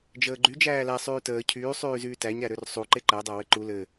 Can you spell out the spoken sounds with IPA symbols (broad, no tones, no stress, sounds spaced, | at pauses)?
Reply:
d͡ʒ əː ɡ͡ǃ y d͡ʒ æː l æ sˤ yː t əː cʰ yː sˤ yː z yː t æ ɲ ɾ æ ɾ ø r sˤ u ǃ e ǃ æ dˤ æ w ɘ ǃ u l ɘ